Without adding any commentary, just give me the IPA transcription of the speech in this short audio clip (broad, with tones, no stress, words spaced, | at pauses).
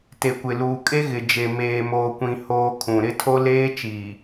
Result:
te˨kʷɪ˨ luː˨kʼe˦ɣɪ˨d͡ʒe˨ meː˨moː˨kʷĩ˨ hoː˦kʰũ˨ ɾɪ˦tʰo˦ leː˦t͡ʃiː˨